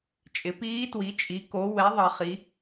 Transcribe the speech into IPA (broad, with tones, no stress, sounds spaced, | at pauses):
t͡ʃʼ ɪ˩˥ p iː˧˥ t w i˩˥ t͡ʃʼ i˩˥ k o˩˥ w ɛ˩˥ ðˤ ʌ˩˥ χ i˩˥